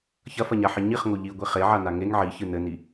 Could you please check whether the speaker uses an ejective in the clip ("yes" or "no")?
no